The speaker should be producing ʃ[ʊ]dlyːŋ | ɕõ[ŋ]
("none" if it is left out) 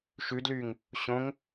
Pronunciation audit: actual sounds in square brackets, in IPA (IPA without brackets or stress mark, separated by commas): ʉ, ŋ